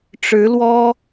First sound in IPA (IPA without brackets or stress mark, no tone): ʈ͡ʂ